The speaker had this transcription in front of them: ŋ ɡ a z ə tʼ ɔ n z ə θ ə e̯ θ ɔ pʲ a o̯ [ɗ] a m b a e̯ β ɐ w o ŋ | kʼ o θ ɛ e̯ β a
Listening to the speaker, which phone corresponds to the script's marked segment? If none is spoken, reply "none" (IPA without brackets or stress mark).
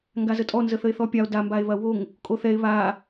d